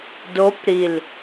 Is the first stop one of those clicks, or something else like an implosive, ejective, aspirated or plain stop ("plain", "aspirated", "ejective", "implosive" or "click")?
plain